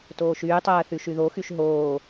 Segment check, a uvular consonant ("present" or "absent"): absent